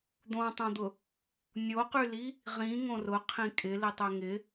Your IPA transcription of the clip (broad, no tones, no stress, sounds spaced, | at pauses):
d̪ õ tˤ õ d̪ ʊ | nʲ o q y l i | ʁ ĩ ŋ õ r ʊ qʰ ĩ kʼ ɪ l i tˤ ø ŋ ɪ